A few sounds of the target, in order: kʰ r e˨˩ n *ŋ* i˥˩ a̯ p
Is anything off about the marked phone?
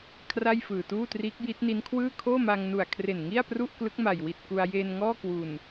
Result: no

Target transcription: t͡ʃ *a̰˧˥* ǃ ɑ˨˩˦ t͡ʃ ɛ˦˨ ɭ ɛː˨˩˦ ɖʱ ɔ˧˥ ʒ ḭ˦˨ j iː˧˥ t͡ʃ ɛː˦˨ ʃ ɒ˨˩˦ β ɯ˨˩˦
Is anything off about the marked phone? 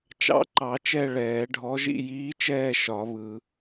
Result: yes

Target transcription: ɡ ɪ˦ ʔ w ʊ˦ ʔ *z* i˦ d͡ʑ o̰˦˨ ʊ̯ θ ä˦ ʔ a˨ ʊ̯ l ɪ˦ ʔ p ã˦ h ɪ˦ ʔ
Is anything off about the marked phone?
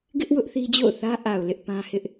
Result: yes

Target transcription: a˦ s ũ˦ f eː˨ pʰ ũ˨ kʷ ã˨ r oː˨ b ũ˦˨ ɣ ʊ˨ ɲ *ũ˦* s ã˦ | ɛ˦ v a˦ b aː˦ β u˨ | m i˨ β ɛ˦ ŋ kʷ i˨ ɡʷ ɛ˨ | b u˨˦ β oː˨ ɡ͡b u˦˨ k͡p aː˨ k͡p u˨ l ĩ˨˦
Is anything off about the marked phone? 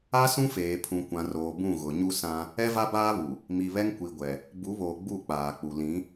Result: yes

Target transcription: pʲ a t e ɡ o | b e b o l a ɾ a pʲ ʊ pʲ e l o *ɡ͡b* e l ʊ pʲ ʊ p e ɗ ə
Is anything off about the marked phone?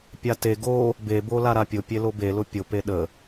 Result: yes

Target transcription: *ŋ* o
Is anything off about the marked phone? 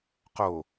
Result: yes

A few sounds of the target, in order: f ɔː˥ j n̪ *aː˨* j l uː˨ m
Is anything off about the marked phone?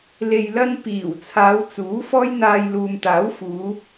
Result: yes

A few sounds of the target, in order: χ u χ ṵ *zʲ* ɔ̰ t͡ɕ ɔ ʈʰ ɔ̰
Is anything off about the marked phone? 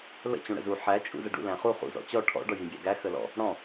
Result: yes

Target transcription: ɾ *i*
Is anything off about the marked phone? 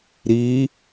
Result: no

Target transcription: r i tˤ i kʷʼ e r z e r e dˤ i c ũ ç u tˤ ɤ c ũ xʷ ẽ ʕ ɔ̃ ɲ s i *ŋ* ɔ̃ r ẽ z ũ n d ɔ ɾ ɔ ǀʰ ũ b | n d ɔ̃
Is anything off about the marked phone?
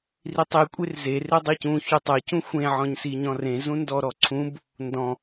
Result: yes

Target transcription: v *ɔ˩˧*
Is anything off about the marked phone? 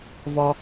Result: yes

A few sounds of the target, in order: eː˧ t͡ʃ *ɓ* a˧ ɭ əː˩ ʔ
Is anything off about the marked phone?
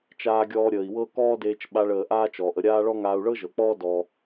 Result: no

